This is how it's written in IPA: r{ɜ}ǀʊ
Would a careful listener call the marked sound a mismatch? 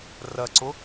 no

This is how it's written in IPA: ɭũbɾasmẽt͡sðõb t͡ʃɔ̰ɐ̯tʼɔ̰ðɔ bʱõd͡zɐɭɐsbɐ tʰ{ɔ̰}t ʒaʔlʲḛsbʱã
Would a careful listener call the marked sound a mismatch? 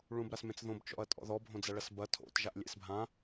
yes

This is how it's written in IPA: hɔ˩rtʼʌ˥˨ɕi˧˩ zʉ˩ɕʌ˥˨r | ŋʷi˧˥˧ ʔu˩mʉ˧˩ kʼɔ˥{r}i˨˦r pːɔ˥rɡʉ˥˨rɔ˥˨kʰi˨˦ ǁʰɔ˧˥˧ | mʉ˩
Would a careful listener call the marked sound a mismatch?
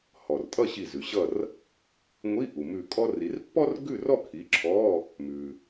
no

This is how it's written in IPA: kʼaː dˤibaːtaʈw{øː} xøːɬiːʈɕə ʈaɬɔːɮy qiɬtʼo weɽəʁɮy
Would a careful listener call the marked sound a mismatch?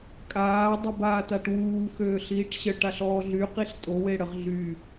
yes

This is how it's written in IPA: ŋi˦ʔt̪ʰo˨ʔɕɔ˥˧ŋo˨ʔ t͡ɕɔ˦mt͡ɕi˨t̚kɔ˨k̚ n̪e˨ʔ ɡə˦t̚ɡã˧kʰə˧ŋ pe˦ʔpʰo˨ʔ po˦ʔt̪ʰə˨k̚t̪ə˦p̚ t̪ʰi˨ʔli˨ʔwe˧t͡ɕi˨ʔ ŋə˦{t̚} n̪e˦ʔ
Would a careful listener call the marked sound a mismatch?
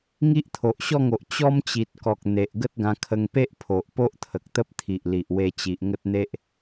no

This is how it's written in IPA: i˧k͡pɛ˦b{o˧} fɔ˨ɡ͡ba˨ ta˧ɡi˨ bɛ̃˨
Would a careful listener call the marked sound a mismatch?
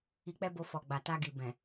no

